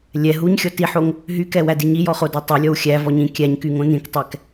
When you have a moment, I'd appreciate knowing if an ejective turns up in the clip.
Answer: no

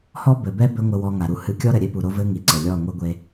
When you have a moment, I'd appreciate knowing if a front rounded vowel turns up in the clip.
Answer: no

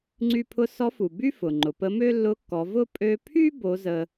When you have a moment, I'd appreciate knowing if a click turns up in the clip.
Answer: yes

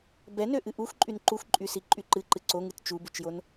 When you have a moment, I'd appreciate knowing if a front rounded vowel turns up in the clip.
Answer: yes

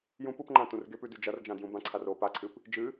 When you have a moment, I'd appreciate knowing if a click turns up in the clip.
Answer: yes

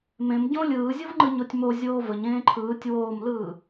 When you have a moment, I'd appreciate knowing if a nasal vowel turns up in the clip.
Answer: yes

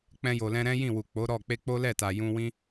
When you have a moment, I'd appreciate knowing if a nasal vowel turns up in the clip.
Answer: yes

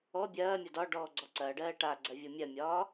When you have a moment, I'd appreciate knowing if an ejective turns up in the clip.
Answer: no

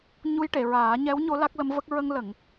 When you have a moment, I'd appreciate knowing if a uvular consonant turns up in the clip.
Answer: no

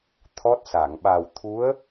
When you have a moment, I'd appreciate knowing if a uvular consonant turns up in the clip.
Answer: no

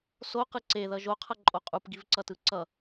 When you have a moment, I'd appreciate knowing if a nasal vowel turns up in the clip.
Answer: no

